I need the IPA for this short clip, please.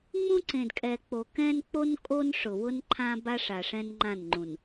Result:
ŋ͡mũ˦ǀẽ˨dkʼɛ˨k͡po˨ kɛ̃˦nk͡po˦n kʼo˦nʂʊ˨ wʊ˦nǃʰã˦ba˦ʂa˨ ʂɛ̃˦nŋ͡ǃã˦˨nŋ͡ǃũ˨n

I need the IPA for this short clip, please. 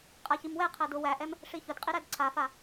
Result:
qʼaçimwɛ qʰædʊ wæʔɛm | ʂiçʊdqʼiɾæd ǀʰafa

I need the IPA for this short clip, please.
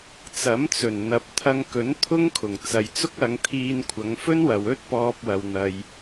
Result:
t͡sɐ˨˥mt͡sɵ˨˩n n̪ɐ˨p̚ t̪ʰɐ˧ŋkɵ˨˥n t̪ʰʊ˥ŋ kʰʊ˨˩ŋ t͡sɐ˨jt͡sʊ˥k̚ ɐ˨˧ŋt̪ʰiː˧nkʷʰɐ˨˧ŋ fɵ˥nwɐ˨w ɵ˥t̚pɔː˧p̚wɐ˨wn̪ɐ˨j

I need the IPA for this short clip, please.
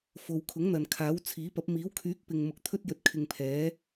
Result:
fo˨wkʰʊ˨˥ŋn̪ɐ˨n kʰaː˨˥wt͡sʰiː˨˥pɐ˨˥p̚ miː˨˥wkʰyː˨˥k̚pɪ˨ŋmʊ˨k̚ t̪ʰɵ˥t̚ jɵ˧t̚kʰɪ˧ŋpʰɛː˨˥

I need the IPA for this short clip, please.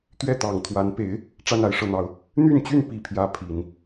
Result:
t̪ɥɛ˥˩t̪ɑ˨˩ŋt̪ʰwa˧˥npe˧˥ɪ̯ | ʈ͡ʂa˥˧na˥˧ɪ̯ʂɤ˥˩n̪ɑ˧˥ʊ̯ | n̪y˥˧nt͡ɕy˥˧n pi˥˩pʰjä˥ pʰi˨˩˦n

